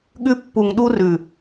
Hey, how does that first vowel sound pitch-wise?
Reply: high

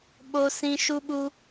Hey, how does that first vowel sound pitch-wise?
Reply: high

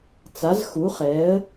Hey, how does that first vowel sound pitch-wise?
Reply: rising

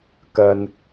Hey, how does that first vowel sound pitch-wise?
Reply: low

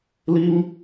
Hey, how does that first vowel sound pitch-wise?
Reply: high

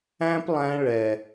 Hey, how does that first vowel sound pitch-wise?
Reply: high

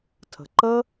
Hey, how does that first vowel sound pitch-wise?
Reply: low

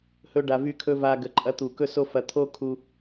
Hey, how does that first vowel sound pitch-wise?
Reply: high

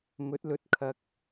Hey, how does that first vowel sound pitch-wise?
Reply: rising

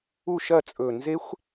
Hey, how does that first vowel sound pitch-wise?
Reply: falling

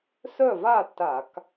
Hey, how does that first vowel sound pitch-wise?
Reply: falling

